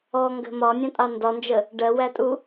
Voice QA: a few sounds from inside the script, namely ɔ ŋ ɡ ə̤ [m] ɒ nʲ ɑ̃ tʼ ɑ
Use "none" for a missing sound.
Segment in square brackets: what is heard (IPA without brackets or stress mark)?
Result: m